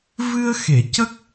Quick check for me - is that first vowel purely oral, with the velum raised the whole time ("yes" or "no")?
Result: yes